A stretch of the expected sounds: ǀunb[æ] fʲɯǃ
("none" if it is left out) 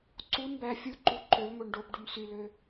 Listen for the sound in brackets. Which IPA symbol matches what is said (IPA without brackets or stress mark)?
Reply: æ